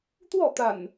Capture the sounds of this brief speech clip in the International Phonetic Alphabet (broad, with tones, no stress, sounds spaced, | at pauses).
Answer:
t̪ w ɔ˥˨ t̪ a̰˨˩ n